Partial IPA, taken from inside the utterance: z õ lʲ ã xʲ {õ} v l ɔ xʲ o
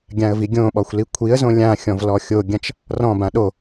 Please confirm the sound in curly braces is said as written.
no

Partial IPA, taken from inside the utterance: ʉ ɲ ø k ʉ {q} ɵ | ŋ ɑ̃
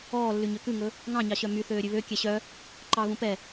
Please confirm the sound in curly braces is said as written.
no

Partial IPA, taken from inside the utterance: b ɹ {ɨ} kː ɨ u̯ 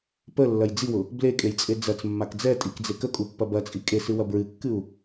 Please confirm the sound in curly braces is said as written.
yes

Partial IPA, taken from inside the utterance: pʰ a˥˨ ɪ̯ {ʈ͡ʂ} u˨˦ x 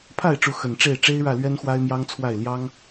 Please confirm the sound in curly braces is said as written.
yes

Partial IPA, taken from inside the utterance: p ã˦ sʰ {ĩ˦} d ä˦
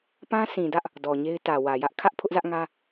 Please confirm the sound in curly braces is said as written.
no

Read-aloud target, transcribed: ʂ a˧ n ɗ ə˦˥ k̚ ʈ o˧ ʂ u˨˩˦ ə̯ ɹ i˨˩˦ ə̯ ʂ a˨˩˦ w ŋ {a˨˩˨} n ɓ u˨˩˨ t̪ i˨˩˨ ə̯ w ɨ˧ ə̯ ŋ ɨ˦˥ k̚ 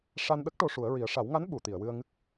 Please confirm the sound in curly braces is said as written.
no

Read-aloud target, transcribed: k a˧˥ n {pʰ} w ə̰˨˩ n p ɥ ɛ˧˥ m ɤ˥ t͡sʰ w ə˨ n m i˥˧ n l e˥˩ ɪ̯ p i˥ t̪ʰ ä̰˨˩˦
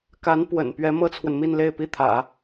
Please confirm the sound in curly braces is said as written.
no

